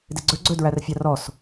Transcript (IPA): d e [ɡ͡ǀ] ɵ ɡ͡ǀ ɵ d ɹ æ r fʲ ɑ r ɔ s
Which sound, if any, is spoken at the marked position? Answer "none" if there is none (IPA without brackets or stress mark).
ɡ͡ǀ